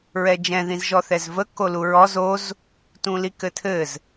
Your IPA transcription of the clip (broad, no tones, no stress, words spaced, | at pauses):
ɹɛd͡ʒɛ̃ ðĩzʒɔθɛzvə koluɹɔz oz | tũlikɘtʰɘz